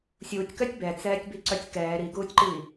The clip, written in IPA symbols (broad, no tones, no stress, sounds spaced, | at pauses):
sʲ uː tʲ k œ tʲ b ɛ t͡s ɛː tʲ b i ǀ œ tʲ k ɛː ɾ i ɡ uː tʲ ǃ iː